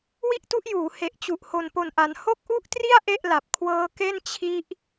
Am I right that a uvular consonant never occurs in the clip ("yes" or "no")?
yes